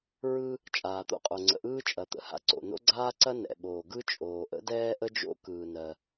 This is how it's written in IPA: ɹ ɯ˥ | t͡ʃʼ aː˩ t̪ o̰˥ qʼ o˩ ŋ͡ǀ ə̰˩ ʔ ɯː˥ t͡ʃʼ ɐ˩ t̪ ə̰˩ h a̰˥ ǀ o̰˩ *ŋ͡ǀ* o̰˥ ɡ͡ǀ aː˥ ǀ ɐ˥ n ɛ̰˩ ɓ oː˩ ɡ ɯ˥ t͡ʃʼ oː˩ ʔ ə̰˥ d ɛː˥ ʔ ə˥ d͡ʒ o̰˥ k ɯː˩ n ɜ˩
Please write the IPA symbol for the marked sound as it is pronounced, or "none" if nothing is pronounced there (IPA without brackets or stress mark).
n